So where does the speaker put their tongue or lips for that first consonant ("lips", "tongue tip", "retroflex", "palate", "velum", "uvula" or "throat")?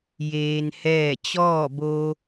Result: palate